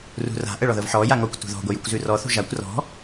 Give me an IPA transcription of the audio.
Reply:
r ṳ r a̤ ʔ ə ɭ ɔ ð ɤ v ħ ɔ j a ŋ ɔ kʷ t ṳ ð ɔ̤ ɡʷ ə j u kʷ z ʉ r ɔ θ ṳ ʒ a kʷ r ɔ̤

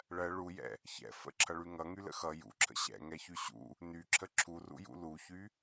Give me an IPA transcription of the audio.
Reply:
ɭ ɜ ɭ u j ɛ̰ | ç ɛ̰ f ə̰ ǁʰ ʌ ɭ y ŋ ʌ ŋ y l ə̰ x ʌ j ṵ ǁʰ ə̰ ɕ ɛ̰ ŋ ɛ ç y ɕ ṵ | n y ǁʰ ə ǁʰ u r ṵ j ṵ l u ç y

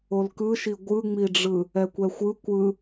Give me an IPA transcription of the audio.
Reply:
o l k ɯ ʃ i ɡʷ ɯ ŋ͡m i ɖ͡ʐ ɯ | ɛ kʷ ɛ xʷ ɯ kʷ ɯ

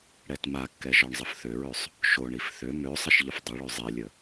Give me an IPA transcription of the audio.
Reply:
ɽ ɛ t m a kː ɛ ʒ ɔ ɳ zˤ ə f θ ø ɹ ø sˤ | ʃ o ɳ i f θ ø m ø sˤ ə ʃ ʎ ə f dˤ ə ɭ ø zˤ i lʲ ə

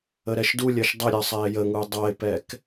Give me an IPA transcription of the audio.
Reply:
ə ɾ ɛ ʃ d u lʲ ɜ ʃ dˤ ə ɾʲ ɜ sˤ ɛ ɪ̯ j ə ŋ u dˤ ʌ ɪ̯ p ɛ k

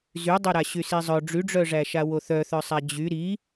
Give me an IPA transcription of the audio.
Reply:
z y dˤ o ɾ a ɕ y s i zˤ œ ɖ͡ʐ y ɖ͡ʐ œ ʐ æ ʃ a w o θ œ θ œ sˤ æ d͡ʑ y ɾ i

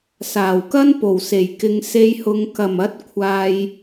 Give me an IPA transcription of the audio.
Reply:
s aː˨˩ w k ɐ˥ n p o˨˩ w s e˨˩ j k ɪ˨ ŋ s e˧ j h ʊ˨˧ ŋ k ɐ˨˩ m ɐ˨˥ t̚ kʷʰ aː˧ j

